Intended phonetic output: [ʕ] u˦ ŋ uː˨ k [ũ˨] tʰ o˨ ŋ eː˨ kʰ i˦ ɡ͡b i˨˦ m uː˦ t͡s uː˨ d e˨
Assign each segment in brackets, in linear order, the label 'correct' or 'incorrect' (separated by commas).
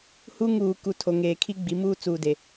incorrect, incorrect